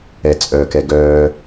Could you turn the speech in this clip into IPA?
ɛ t͡sʼ œ k ɛ ɡ œː

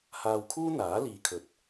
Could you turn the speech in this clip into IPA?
h aː˧ w kʰ uː˥ n̪ aː˨˥ l iː˨˧ kʰ ɵ˨˥ t̚

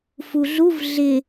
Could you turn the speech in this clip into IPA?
f u ɮ u v ɮ ɪ

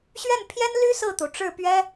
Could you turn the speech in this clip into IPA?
ɕ ɥ ɛ˥˩ n pʰ j ɛ˥ n l y˥ s ɹ̩˥˩ t̪ u˩ ʈ͡ʂ ɻ̩˥˩ p ɥ ɛ˥

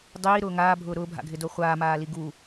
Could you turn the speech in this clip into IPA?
dˤ iː ɾ ʊː ŋ aː bʱ ʊː ɾ ʊː bʱ a̰ ɡʱ ɪ d o χʷ aː m aː l i ɡ uː

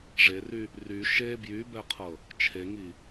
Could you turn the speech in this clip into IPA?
ʐ e r y | r y ʃ e b j y b ɛ qʰ ɤ | t͡ʃʰ e ŋ i

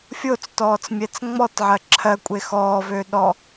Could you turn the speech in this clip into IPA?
fʲ o t͡s t ɔː t͡s mʲ ɛ t͡s ŋ͡m ɔ t ʕ ɜ ǁʰ ɜ kʷʼ e x ɔː v ø ɗ ɔ

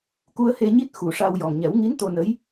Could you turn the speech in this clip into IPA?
k u˧ ə̯ h e˧ ɲ i˦˥ t̚ x u˨˩ ʂ a˧ w j ɔ˨˩ ŋ ɲ ɛ˨˩˦ w ŋ i˧˥ n t̪ o˧ n ə˧˥ j

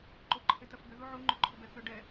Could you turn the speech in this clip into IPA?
ǃ o ǃʰ e t ɐ f b ʏ ð u ʕ u ŋ͡ǃ ʏ ǃʰ ʏ b ɛ θ ʏ ɖ ɛ

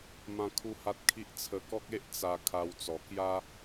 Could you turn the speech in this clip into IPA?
m ã˦ kʰ u˦ h a˦ t̚ kʰ i˦ ʔ t͡sʰ ə˧ k ɔ˦ k̚ e˦ ʔ t͡s a˧ kʰ a˧ w t͡s ɔ˨˩ k j a˦

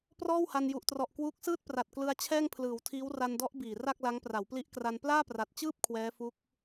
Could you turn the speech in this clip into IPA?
p r ɔː˥˩ w h a˧ n j u˨˩ ʔ t r ɔ˨˩ ʔ k w uː˦˥ k̚ s ɯː˥˩ t̚ p r a˨˩ t̚ k l ɯ˧ a̯ t͡ɕʰ ɛː˥˩ ŋ pʰ l ɯː˩˦ w tʰ iː˦˥ w r a˧ n d ɔ˦˥ ʔ b iː˨˩ r a˥˩ k̚ l a˦˥ ŋ p r a˩˦ w p l i˦˥ ʔ k r a˧ n p l aː˥˩ p r a˨˩ t̚ t͡ɕ ɯː˥˩ p̚ kʰ w ɛː˦˥ f u˦˥ k̚

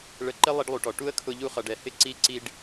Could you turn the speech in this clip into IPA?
ɭ ə˧ ǃ ɪ˦ lˠ i˧ ɖ lˠ u˨ ʈ ɔ˨ ʈ u˦ ə̯ kʰ ʊ˦ ʎ u˦ χ ʌ˧ ɖ ɛ˧ h ɪ˦ ǀ i˧ ǀ i˧ ɖ

